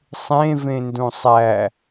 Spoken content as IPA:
sˤẽvẽndũ sˤæ

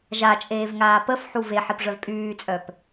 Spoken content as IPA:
ʒat͡ʃʼeːvŋaː pəfħu veħipʐœv pʼyːt͡sʼœp

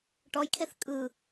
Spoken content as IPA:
ʈɔjkʰeθ kʼɯ

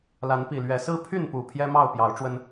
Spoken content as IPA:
la˨˦npi˨˩lɥɛ˨˦ sɹ̩˦pʰy˥˨npu˨˩ pʰjɛ˦mɑ˥˨ʊ̯pjɑ˨˦ʊ̯ ʈ͡ʂwə˦n

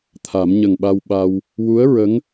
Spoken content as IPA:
t̪ʰa˨˩˦m ɲə˨˩ŋɓa˧w ɓa˧w | wu˧˥ə̯ɹə˧˥ŋ

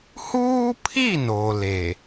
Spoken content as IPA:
huː˦pʰi˦˨ no˨le˨

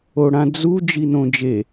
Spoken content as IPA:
oɽãd͡zu d͡ʒinõd͡ʒe

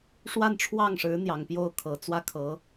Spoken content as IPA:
ʂwa˥˧nʈ͡ʂʰwɑ˥˩ŋʂɻ̩˧˥ n̪jɑ˨˩ŋpjo˥˩ʊ̯kʰɤ˨˩ t͡swä˥˩kʰɤ˧˥

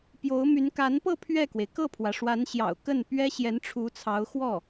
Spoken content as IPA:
pjo˧˥ʊ̯my˧˥n ka˧˥npɤ˥˧ pʰɥɛ˥˩kwe˩ɪ̯ kɤ˥˩pʰwä˩ ʂwa˧˥nɕjɑ̰˨˩ʊ̯kə˥˩npɥɛ˥ ɕjɛ˧˥nʈ͡ʂʰu˧˥t͡sʰɑ˧˥ʊ̯ xwɔ˥˩

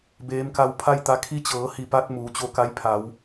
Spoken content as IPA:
beː˧˥mka˧w pʰa˥˨jt̪a˧˥ kʰi˧˥t͡ɕɤː˩˧ hi˧˩pa˧t̚ muː˩˧t͡ɕo˧ka˧˥jpʰa˩˧w

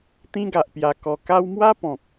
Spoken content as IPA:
t̪ĩ˦ɡa˨ʔpja˧kɔ˧ ka˦w mwa˦pɔ̃˨k̚

